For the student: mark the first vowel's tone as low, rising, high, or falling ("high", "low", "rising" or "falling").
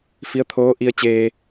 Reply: rising